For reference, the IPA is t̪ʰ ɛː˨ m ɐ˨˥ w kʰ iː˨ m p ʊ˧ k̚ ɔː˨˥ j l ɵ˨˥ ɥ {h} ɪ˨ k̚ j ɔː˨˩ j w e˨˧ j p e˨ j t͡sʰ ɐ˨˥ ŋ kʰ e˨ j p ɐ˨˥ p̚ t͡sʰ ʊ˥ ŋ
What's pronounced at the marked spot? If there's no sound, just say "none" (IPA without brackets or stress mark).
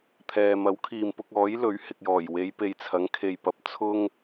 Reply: h